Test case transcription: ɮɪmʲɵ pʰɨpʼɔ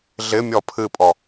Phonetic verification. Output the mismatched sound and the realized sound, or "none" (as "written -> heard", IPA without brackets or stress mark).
ɵ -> ɔ